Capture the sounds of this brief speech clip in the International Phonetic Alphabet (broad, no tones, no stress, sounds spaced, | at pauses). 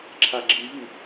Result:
ǁʰ a ɡ͡ǁ i v i